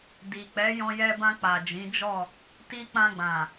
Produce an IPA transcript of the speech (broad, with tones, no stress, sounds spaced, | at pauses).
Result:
d i˨ k͡p ɛ˨˦ j ɔ̃˧ j ɛ˧ b ã˧ k͡p a˨ d͡ʒ ĩ˨˦ d͡ʒ ɔ˦˨ | t i˧ k͡p ã˧ ɡ͡b ã˨